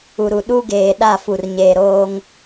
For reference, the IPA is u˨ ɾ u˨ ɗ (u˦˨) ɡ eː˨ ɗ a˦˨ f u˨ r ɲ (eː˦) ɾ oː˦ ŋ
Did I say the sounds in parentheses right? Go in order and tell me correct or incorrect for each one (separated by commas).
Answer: incorrect, incorrect